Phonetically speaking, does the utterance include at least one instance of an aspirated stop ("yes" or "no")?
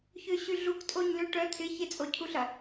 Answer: yes